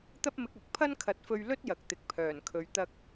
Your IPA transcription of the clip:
t̪ ɐ˥ p̚ m ɪ˧ k̚ ɐ˨ k̚ pʰ ɐ˥ n kʰ ɐ˨˥ t̚ f ɵ˧ ɥ l ɵ˥ t̚ j ɐ˨ k̚ t̪ ɪ˨ k̚ pʰ œː˨˩ n kʰ ɵ˨˧ ɥ t̪ ɐ˧ k̚

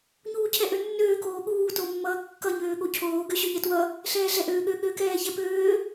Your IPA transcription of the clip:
ɲ uː cʰ ɛ ʔ ø nː øː k oː ɠ uː t o mː ʌː kː ʌ ɲ øː ɠ o cʰ oː ɡ ø ɕ ø ɲ ɛ t w ʌ | ɬ ɛː ɮ ɛ ʔ øː ɠ ø ɠ ø k ɛː ç ɛ p øː

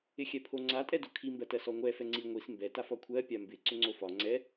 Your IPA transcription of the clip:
ɪ xʲ ɛ pʰ o ŋ͡ǀ a tʼ ɛ d o kʰ i m b ɜ t ɜ s ɔ ŋʷ ɛ f ɛ ŋ͡ǀ i ŋʷ i s m b ɛ t a f ɒ kʷʰ ɜ pʲ a m b ɪ ǀ ʏ ŋ͡ǀ o f ɒ ŋ͡ǀ ɛ

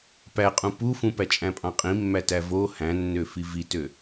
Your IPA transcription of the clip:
p æ qʼ ũ p u f ũ p æ t͡ʃʼ æ̃ pʼ ɑ̃ qʼ ĩ mː æ t æ v o h æ̃ nː ø f i v i t ø

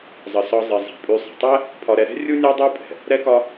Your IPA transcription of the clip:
zˤ ə˩ s ɒ˨ zˤ i˩ zˤ ɛ̤˩ pʼ y˨ sˤ ə̤˩ tˤ ɛ˥ | pʰ ɒ˨ ɾ ɛ˨ ɾ ɛ̤˥ rʲ u˥ nʲ ɒ˥ dˤ y˥ pʼ ɛ̤˩ | ɾ ɛ˦ k ɒ˦

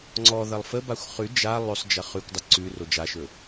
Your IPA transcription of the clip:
ŋ͡ǀ ɔ ð ɐ lˠ f ə b a xʷ χ ʉ d͡ʒ a lˠ ɵ sˤ d͡ʒ ɐ χ ʉ kʷ dˤ ə ǀ ʉ r o d͡ʒ a ʃ ɵ

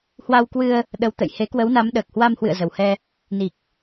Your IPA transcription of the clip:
h w a˧ w k w ɨ˧ ə̯ | ɗ ə˨˦ w t̪ ə̰˧˨ j h e˨˦ k w ə˨˦ w n a˨˦ m ɗ əː˨˩ k̚ h w a˧ m h w ɨ̰˧˨ ə̯ z ə˨˩ w h ɛ˧ | n i˨˩ k̚

